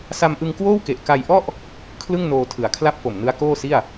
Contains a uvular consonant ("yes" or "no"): no